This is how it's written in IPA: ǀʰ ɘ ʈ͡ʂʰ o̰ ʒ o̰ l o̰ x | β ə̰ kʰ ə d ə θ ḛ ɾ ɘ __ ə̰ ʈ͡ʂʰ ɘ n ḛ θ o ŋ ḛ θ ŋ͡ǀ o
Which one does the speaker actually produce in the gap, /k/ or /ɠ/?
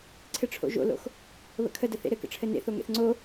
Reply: k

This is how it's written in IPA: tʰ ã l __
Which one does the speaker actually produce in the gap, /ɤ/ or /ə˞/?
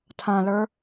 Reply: ə˞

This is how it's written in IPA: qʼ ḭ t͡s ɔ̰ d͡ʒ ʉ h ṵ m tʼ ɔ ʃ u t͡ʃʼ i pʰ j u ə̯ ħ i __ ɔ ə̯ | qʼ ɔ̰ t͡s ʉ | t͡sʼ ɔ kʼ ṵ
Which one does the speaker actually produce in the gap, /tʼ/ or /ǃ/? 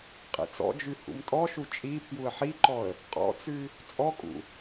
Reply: ǃ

